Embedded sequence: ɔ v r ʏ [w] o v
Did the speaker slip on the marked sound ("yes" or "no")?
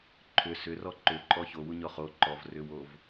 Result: no